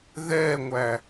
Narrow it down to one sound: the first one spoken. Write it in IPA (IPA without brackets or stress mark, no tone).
ð